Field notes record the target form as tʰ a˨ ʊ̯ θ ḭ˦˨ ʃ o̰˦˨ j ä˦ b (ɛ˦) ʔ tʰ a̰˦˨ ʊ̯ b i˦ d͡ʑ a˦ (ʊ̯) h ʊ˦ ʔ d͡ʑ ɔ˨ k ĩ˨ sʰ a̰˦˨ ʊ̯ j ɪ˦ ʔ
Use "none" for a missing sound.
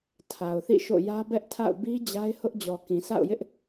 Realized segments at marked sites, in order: ɛ˦, ɪ̯

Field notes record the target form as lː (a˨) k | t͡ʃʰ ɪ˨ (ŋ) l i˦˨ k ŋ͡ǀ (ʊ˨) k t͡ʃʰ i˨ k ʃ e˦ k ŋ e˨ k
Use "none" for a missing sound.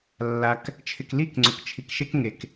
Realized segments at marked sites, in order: a˨, k, ʊ˨

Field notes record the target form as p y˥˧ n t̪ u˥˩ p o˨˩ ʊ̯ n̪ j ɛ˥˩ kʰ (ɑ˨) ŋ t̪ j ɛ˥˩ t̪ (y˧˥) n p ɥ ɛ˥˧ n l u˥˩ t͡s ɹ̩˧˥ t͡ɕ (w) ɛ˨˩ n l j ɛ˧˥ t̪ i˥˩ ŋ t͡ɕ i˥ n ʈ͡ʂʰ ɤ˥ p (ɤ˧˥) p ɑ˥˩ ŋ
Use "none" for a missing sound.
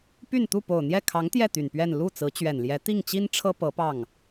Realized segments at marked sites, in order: ɑ˧˥, y˨˩, ɥ, ɤ˧˥

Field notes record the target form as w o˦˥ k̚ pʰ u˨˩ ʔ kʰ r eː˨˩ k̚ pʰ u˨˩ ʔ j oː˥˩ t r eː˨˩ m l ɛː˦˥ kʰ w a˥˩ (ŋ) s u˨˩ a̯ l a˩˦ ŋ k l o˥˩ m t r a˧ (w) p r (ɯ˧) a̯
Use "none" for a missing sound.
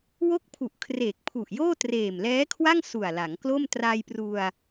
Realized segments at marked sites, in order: ŋ, j, u˧

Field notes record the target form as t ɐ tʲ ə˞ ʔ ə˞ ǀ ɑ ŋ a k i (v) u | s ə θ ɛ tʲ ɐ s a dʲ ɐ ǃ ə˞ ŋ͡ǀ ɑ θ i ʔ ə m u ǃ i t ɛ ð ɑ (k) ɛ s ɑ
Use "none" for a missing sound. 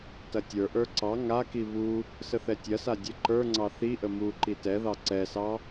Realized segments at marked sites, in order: β, ǀ

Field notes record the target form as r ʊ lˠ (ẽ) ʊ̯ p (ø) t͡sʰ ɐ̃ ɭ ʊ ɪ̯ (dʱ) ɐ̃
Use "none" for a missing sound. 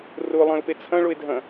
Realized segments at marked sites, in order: ẽ, e, dʱ

